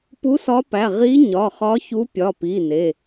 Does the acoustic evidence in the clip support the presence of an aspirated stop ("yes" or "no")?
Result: no